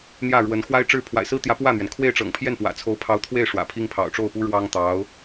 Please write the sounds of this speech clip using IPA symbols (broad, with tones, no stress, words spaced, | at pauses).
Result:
n̪jä˥˩ɻwə˧˥n xwa˥ɪ̯ʈ͡ʂɻ̩˥˩ pʰwa̰˨˩ɪ̯sɹ̩˥t̪jä˧˥ pwä˥˩n̪ɥɛ˩n kʰwe˥˩ɪ̯ʈ͡ʂɤ̰˨˩ŋpʰjɛ˥˩n pwä̰˨˩ t͡sʰo˧˥ʊ̯pʰɑ˧˥ʊ̯t̪ʰwe˥˩ɪ̯ ʂwä̰˨˩pʰi˥ŋ pʰɑ̰˨˩ʊ̯ʈ͡ʂo˥˩ʊ̯pu˥ ɻwɑ˥ŋ t̪ɑ˧˥ʊ̯